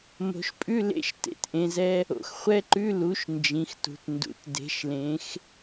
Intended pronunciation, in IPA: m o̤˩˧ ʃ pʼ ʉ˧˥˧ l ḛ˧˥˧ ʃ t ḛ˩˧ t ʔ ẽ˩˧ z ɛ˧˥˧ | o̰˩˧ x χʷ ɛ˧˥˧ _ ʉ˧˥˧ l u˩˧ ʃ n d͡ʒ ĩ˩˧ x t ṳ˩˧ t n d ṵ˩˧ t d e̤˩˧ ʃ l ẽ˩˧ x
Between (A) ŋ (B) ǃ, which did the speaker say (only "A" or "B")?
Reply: B